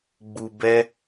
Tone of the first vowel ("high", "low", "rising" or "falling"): low